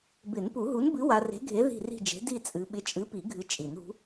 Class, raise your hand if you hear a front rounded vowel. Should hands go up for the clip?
no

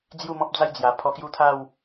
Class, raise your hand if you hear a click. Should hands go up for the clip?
no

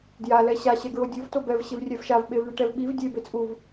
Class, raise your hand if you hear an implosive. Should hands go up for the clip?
yes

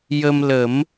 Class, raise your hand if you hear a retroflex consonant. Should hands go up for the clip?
no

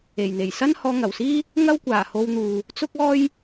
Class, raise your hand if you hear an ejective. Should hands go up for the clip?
no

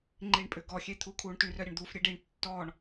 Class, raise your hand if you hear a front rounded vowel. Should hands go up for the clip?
yes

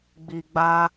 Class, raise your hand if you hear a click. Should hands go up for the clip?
no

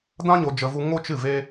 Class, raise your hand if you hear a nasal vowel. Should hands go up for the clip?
yes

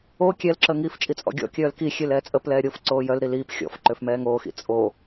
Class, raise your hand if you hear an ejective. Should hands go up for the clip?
yes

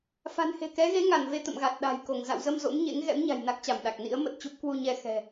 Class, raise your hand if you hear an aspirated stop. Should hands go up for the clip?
no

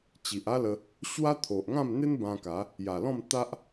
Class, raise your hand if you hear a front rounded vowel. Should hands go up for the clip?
no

